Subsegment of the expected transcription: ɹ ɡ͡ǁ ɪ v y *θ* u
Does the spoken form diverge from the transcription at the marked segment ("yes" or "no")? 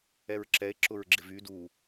yes